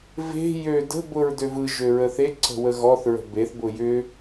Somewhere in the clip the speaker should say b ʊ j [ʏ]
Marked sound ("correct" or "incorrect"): correct